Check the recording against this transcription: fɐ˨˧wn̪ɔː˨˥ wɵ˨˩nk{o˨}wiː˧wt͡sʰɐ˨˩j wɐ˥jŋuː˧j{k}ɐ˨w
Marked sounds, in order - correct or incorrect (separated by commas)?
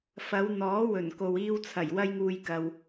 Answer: correct, correct